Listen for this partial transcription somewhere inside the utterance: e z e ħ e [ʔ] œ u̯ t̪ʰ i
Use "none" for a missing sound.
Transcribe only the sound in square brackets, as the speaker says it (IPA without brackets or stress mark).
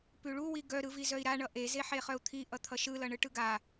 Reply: χ